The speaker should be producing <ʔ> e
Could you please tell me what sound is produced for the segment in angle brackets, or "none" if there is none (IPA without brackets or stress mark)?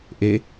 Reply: ʔ